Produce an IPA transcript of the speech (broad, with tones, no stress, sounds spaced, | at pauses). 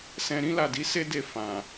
s ɛ̃˧ ɾ ĩ˦ l a˦˨ d i˨˦ s e˦ d e˦˨ f ã˨